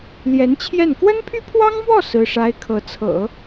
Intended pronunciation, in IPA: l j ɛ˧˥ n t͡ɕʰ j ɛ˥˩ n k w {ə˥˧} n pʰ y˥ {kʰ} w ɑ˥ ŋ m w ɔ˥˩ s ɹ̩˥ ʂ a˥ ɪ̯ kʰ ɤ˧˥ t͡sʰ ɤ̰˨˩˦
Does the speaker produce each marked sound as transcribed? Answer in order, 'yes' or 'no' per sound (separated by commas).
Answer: no, no